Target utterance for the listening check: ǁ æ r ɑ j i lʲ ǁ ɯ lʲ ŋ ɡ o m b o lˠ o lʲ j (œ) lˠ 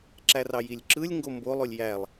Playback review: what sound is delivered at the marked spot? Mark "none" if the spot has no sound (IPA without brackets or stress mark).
æ